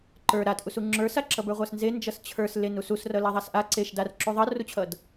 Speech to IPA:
ǃ ə˞ ɾ a t ʔ u s u ŋ͡ǁ ə˞ s a ǁ ʌ b ə˞ ʁʷ a s n z e n d͡ʒ ʌ s t͡ɕʰ ə˞ s l e n u s u s r ʌ l a ðˤ a s ʔ a ǀ e ʃ d a r ǁ u ðˤ ʌ r u t͡ɕʰ ʌ d

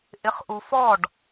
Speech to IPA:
ʔ ɪ χ ʔ u f ɔ ɖ

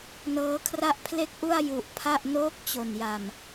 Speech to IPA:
n ɤː˦˥ kʰ r a˥˩ ʔ pʰ l e˥˩ k̚ ʔ u˥˩ a̯ j u˨˩ ʔ pʰ a˥˩ ʔ n oː˦˥ k̚ t͡ɕ o˨˩ n j a˨˩ m

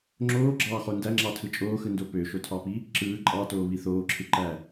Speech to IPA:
ŋ͡ǁ oː ɡ͡ǁ ɑː χ o n d æ ŋ͡ǁ ɑ tʰ ɯ t͡ʃʼ oː x ɯ n d o p ø ʃ o tʰ ɑ p i | ǁ ɯː ǃʼ ɑ t oː β i θ oː ǁʰ ɯ ǃ æ

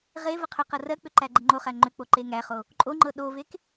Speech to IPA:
ʁ e v ə qʰ ʏ q ɤ r ɜ k͡p ʏ ǃ æ ɡ͡ǃ ə ŋ͡ǃ o χ æ ŋ͡ǃ ʏ k͡p o ǃ e ŋ æ χ o | ǃʼ o ŋ͡ǃ ɤ ɗ o v e k

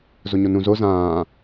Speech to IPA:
z o ɲ o n ũ z o z ãː

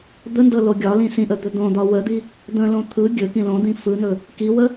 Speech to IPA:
d̪ ə n d ɤ l o ɡʲ ɒ l ĩ s ĩ ʔ ə d̪ ɵ d̪ õ d̪ ɒ w ə d̪ i | d̪ ə̃ l õ t̪ʰ ɯ ɡʲ ɵ k ĩ l õ d̪ ĩ f ɯ n ɵ | k i w ə

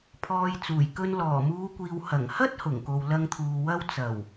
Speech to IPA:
pʰ ɔː˧ j t͡s uː˨˩ j k ɵ˧ n l ɔː˨˩ m uː˨˧ kʷ iː˨ w h ɐ˨˩ ŋ h ɐ˥ t̚ h ʊ˨˩ ŋ k o˨ w l ɐ˧ ŋ t̪ʰ uː˨ w ɐ˧ w t͡s ɐ˨˩ w

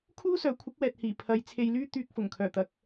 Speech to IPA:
kʰ uː˥ s œː˨˥ kʷʰ ɪ˨˥ k̚ w ɛː˨ t̚ h iː˨˩ pʰ ɐ˨˧ j t͡sʰ e˧ j l yː˥ t̪ yː˧ k̚ f ʊ˨˩ ŋ kʰ œː˨˩ t̪ ɐ˨˥ k̚

